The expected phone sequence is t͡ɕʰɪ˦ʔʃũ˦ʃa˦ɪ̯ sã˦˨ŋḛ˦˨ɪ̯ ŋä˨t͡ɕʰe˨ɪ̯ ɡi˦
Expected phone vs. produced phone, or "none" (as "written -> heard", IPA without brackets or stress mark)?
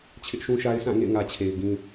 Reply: i˦ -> ĩ˦